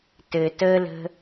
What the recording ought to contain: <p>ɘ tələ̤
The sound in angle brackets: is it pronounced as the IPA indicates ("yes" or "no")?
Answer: no